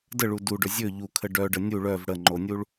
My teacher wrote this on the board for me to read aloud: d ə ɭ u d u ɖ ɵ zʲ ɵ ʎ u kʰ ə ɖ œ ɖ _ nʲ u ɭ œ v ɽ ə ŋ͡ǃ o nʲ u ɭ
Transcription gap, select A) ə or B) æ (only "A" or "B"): A